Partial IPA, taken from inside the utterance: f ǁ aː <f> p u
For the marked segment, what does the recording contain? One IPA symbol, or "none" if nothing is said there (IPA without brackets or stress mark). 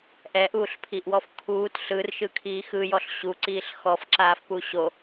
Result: f